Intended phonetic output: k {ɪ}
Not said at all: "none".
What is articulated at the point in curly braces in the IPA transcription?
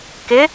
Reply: ɪ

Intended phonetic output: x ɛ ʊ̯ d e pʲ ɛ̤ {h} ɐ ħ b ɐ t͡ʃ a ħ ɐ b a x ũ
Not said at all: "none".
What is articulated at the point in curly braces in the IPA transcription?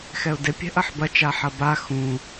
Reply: ʔ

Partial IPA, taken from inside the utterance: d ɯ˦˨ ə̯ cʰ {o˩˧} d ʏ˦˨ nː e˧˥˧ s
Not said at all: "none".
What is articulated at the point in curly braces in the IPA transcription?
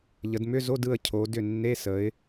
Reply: o˩˧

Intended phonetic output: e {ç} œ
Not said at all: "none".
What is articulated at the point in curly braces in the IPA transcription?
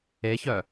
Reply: ç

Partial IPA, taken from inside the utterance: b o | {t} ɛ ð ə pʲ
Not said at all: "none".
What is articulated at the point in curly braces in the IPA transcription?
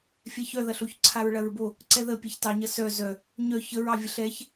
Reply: ǀ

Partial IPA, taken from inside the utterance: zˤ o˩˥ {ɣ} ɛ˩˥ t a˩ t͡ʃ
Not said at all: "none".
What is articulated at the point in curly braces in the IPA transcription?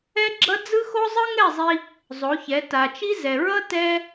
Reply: ç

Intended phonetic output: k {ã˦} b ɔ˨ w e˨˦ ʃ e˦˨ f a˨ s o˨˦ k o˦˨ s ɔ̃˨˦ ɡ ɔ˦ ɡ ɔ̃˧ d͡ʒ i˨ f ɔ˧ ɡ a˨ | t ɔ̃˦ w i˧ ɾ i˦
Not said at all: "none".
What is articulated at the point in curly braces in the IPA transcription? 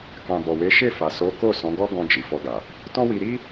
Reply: ã˨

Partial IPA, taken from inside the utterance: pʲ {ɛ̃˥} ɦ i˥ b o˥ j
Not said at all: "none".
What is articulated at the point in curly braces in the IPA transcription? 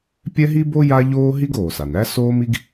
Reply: ɛ˥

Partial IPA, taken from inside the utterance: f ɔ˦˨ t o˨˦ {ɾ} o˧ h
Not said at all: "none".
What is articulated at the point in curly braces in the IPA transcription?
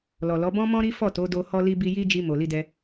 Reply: d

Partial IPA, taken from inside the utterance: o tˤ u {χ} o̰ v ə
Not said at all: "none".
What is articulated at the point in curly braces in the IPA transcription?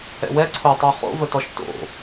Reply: χ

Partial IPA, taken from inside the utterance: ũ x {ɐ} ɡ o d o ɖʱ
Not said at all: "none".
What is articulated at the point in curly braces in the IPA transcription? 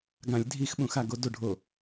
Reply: a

